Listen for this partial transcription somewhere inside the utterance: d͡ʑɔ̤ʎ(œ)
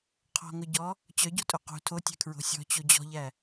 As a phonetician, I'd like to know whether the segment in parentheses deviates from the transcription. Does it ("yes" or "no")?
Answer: yes